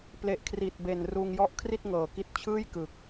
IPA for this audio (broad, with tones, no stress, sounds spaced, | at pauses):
p l e˨˩ ʔ kʰ r i˨˩ t̚ b e˨˩ n r uː˧ ŋ j ɔ˥˩ ʔ kʰ r i˥˩ t̚ ŋ ɤː˨˩ k i˦˥ t̚ t͡ɕʰ ɯː˥˩ j k ɯ˨˩ k̚